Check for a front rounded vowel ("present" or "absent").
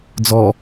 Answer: absent